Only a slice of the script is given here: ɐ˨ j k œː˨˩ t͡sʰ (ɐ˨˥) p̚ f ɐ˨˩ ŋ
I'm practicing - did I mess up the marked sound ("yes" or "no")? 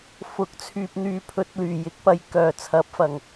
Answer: no